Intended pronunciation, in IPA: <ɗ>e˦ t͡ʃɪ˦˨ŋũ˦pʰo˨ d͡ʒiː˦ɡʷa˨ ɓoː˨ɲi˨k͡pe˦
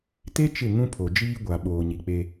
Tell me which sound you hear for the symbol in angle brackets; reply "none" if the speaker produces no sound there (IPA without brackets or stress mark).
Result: t